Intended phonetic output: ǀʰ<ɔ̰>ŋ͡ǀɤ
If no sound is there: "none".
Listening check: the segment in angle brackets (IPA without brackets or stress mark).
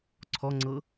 ɔ